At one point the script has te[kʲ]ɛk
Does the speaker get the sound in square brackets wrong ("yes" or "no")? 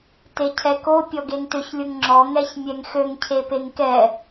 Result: yes